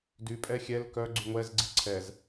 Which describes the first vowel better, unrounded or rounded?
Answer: rounded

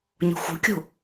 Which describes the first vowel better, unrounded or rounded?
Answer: rounded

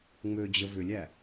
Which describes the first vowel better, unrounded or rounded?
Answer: rounded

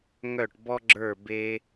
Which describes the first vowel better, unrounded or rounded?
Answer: rounded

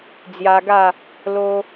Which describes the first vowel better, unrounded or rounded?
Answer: unrounded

